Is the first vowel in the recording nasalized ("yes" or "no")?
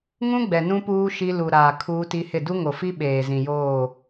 yes